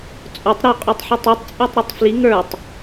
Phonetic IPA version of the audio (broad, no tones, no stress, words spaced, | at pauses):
t͡sʼotˤ ɾɵ qʼøtˤħetˤitˤ t͡sʼøtˤɾotˤfli ŋə˞tˤ